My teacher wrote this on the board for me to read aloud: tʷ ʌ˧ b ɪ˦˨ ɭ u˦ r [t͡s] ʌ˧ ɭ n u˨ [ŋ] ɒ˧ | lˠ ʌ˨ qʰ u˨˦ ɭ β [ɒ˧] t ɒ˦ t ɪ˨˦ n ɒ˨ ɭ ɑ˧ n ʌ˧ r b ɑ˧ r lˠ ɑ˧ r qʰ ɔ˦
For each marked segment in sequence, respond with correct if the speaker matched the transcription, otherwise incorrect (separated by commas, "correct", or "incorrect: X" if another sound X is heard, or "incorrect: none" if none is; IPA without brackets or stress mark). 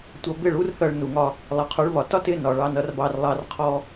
incorrect: θ, correct, incorrect: ɒ˨